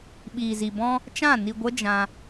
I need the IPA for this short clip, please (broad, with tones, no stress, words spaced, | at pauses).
ɓiː˨zi˨ bɔ̃˧ | t͡ʃã˦˨ ni˧ɡʷə˦d͡ʒã˧